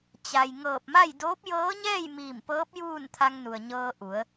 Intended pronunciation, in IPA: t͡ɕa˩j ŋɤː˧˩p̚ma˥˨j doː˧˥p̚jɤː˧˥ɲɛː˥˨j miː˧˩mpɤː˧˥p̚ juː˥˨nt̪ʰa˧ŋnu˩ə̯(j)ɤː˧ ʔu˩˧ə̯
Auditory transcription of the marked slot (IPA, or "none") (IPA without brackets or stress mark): ɲ